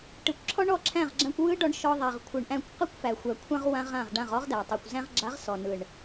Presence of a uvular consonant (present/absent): present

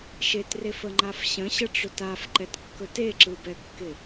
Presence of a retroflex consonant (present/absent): present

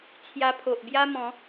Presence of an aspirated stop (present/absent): present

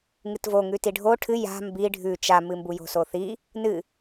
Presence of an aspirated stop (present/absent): present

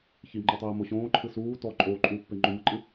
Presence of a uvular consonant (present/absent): absent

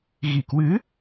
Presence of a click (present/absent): absent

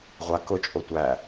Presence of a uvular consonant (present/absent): present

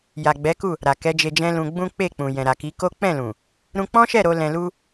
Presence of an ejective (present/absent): absent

